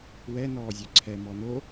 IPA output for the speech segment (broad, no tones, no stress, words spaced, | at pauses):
wɛ nɔːzʲœǀʰɛ mɔno